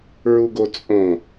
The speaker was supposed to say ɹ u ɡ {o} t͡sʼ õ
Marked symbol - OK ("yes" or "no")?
yes